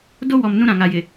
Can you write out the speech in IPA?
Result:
d o˦ w ɔ˨ m n ũ˦ ɾ ã˨ ŋ a˨ j ɪ˨

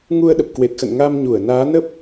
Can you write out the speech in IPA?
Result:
ŋ u˧ ə̯ ɗ ə˨˩ p̚ k w e˨˩ t̚ x ə̰˧˨ n ŋ a˧ m ɲ u˧˩ ə̯ n aː˨˦ n ə˦˥ p̚

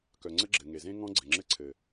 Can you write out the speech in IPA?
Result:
k œ˨ ŋ͡ǀ ə˦ ɡ͡ǁ ɘ˨ ŋ e˨ z ẽ˦ ŋ ɔ̃˦ ɡ͡ǀ ɘ˨ ŋ͡ǁ ɘ˦ ǀʰ ɘ˨

